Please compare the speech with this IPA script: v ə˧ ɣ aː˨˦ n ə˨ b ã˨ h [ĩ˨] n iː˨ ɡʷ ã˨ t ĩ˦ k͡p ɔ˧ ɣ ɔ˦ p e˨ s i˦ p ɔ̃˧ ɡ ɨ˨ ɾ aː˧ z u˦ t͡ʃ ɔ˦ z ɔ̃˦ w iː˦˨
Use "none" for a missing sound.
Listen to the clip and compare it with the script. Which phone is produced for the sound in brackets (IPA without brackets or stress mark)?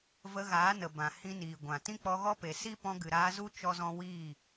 ĩ˧